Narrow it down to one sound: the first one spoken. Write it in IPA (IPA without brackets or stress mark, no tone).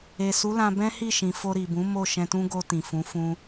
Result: e